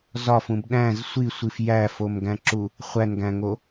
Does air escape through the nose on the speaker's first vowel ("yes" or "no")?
no